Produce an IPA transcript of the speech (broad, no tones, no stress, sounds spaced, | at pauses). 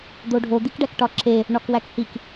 d̪ o ɖʱ o d̪ i k ɖ æ k ʈ ɒ ǁ e | ɳ ɒ k w æ k h i k